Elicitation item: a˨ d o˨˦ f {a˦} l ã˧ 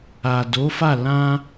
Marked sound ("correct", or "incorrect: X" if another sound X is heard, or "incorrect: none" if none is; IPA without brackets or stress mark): incorrect: a˦˨